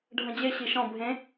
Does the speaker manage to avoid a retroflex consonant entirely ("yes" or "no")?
no